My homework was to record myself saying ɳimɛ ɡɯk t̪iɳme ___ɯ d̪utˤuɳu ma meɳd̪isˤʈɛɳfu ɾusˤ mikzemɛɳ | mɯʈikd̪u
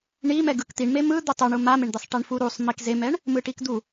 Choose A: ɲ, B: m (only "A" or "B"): B